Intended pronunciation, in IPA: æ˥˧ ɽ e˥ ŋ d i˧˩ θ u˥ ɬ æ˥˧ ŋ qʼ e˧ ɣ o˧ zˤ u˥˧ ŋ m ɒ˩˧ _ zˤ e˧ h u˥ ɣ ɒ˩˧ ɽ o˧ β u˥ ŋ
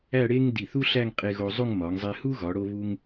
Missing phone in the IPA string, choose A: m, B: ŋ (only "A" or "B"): B